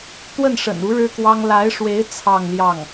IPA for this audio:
t̪ w ə˥˩ n ʂ ə̰˨˩ n u˧˥ ɻ ɻ̩˥ k w ɑ˥ ŋ l a˧˥ ɪ̯ ʂ w e˧˥ ɪ̯ t͡sʰ ɑ˥˧ ŋ l j ɑ˥˩ ŋ

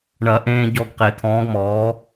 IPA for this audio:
ɳ ɐ˨˩˦ ʔ ẽː˧ ɟ ɔ˧ ɡ q e˨˩˦ t̪ʰ ɔ̃ː˨˥ ɡ m ɔː˨˥

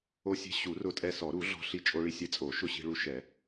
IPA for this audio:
o˧ sʲ e̤˧ ɕ u˨˩˦ r ʊ˧ tʼ ɛ˧ s ɔ˨˩˦ ɾ u˨˩˦ ɮ ɔ̤˧ ɬ i˧ t͡ʃʼ o˧ ɭ i˧ sʲ e˧ t͡sʼ o˨˩˦ ʃ ʊ˧ ɕ i̤˧ ɭ u˧ ʃ ɛ˨˩˦

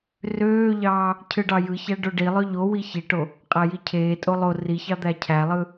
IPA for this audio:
r øː ʎ ɑː | cʰ ɯ ɖ ɑ j ɯ ç æ ɖ o ɖ i lˠ ø ʎ o w i ç i ʈ o | qʼ æ j i cʰ eː tʼ o lˠ o r i ç ɑ d̪ æ cʰ æ lˠ ɯ

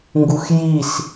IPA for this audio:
ŋ ɡ u x j i s

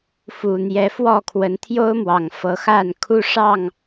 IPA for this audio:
f u˨˩ n̪ j ɛ˨˦ f w ɔ˥˨ kʰ w ə˨˦ n t̪ʰ j o˦ ʊ̯ m w ɑ˨˩ ŋ f ɤ˨˦ x a˥˨ n kʰ u˦ ʂ ɑ˥˨ ŋ

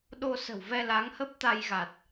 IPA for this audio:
ɗ o˧ s ə̤˨˩ w v ɛ˧ l a˨˦ ŋ h ə˦˥ p̚ t̪ a˧ j ɣ a˨˩ t̚

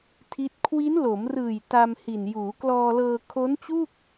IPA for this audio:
tʰ i˦˥ t̚ kʰ w i˦˥ n l o˩˦ m r ɯː˨˩ j t a˧ m h i˨˩ n j uː˩˦ k l ɔː˧ l ɤː˧ kʰ o˦˥ n t͡ɕ u˥˩ k̚

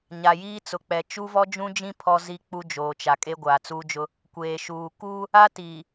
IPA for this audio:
ɲ a˨ j iː˦ t͡s ʊ˨˦ k͡p ɛ˨ t͡ʃ u˦ v ɔ˦ d͡ʒ ũ˦ d͡ʒ ĩ˦ pʰ ɔ˦ z i˦ k͡p u˦ d͡ʒ oː˨ t͡ʃ a˨ kʼ e˦ ɡʷ aː˨ t͡s uː˦ d͡ʒ ʊ˦ | kʷ eː˨ ʃ uː˨ k uː˦ | a˦ t iː˨

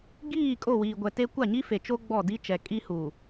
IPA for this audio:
ɡ iː˦˨ kʼ o˦˨ w iː˨ ɡʷ ɛ˨ t e˦ kʷ a˦˨ ɲ i˦ f e˨ t͡ʃ o˦ ɡ͡b ɔ˦˨ d i˦ t͡ʃ ɛ˨ kʼ i˦ h uː˨

